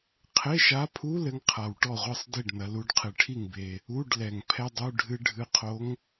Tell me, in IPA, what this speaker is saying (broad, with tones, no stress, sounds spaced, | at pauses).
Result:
qʰ e˧˥˧ ʃ a˧˥ pʰ u˧˥˧ l ɘ˧˥ ŋ qʰ a˨˩ w ʈ ɔ˥˩ ʁʷ ɨ˥˩ sˤ d i˥˩ ɖ n ɐ˩˧ l u˩˧ ɖ qʰ ɨ˨˩ ʈʰ i˥˩ ŋ b e˨˩ | u˧˥˧ ɖ l ɛ˨˩ ŋ pʰ ɛ˥ dˤ u˧˥˧ ɖʱ ɨ˥ ɖʱ ɨ˧˥ qʰ o˧˥ ŋ